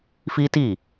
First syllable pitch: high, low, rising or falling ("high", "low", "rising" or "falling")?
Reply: high